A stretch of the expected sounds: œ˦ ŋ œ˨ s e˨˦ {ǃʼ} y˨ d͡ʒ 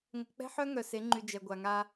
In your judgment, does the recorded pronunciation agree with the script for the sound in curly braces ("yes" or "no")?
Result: no